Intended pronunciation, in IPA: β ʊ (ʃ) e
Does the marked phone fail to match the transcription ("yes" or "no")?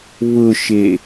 no